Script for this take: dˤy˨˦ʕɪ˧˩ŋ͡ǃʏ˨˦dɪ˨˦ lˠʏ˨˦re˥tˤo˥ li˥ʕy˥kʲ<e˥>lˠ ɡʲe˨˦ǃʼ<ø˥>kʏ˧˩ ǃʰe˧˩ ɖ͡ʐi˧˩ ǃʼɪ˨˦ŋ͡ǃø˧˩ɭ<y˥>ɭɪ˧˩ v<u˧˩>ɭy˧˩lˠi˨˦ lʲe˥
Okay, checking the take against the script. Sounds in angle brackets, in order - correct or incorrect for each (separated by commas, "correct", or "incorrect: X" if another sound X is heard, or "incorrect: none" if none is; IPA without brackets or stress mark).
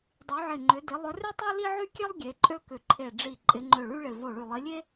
correct, correct, correct, incorrect: o˧˩